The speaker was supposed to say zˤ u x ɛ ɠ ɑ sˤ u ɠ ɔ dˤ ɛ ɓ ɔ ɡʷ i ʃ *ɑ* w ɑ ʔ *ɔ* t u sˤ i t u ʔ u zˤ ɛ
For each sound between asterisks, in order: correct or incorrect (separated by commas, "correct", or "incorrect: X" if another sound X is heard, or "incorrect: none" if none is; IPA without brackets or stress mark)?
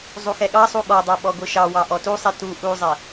correct, correct